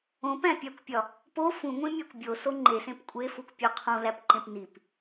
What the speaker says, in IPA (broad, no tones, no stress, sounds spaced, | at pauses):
õ p æ̃ pʲ æ kʷ pʲ ɒ | p o f ũ ŋʷ ĩ mʲ æ kʷ bʲ o s o ŋ͡ǃ e s ẽ p kʷʼ e f u kʷ pʲ o qʰ ũ l æ p ǃ ẽ p n i p